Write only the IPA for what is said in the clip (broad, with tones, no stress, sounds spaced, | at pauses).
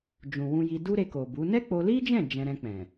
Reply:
d͡ʒ ũ˨ w ũ˧ j i˧ d u˦ ɾ e˧ k o˨ b u˨˦ n ɛ˦ k͡p o˧ l i˦ d͡ʒ ɛ̃˦˨ d͡ʒ ɛ̃˧ ɾ ɛ̃˧ k͡p ɛ̃˨